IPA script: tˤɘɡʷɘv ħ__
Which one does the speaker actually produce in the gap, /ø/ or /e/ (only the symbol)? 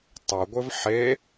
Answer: e